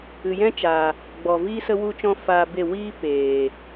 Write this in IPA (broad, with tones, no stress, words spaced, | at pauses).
ɨ˨jɛ̃˦t͡ʃaː˨ | ɡ͡bɔ˨viː˦ sə˦wu˦t͡ʃɔ̃˦ faː˧be˦˨ wiː˦ peː˨